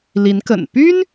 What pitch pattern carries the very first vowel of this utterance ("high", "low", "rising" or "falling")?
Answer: rising